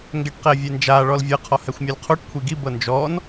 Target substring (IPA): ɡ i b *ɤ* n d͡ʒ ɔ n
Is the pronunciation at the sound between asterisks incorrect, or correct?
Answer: correct